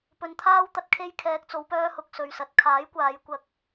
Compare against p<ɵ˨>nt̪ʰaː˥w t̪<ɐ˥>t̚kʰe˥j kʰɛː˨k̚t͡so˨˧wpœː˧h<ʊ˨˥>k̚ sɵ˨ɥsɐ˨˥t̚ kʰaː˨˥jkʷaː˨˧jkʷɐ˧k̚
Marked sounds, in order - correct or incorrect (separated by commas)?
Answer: correct, correct, incorrect